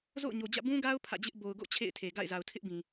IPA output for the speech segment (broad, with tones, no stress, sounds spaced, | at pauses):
z o̰˦˨ ʊ̯ ɲ o˨ d͡ʑ ä̰˦˨ b ũ˦ ɡ a˦ ʊ̯ pʰ ä̰˦˨ d͡ʑ ɪ˦ ʔ b o˨ ʊ̯ ɡ o̰˦˨ t͡ɕʰ ḛ˦˨ ɪ̯ tʰ e˨ ɡ a̰˦˨ ɪ̯ z a˨ ʊ̯ tʰ ɪ˦ ʔ b ĩ˨